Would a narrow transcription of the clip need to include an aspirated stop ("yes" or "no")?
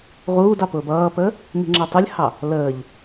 no